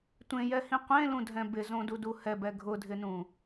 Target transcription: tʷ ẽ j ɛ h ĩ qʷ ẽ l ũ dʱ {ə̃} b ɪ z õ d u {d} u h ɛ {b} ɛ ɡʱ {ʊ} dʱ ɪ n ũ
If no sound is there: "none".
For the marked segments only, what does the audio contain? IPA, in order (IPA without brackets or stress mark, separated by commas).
ɛ̃, d, b, ʊ